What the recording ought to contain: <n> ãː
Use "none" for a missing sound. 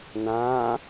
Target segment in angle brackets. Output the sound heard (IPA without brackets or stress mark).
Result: n